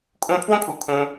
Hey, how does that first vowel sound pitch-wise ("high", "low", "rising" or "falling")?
high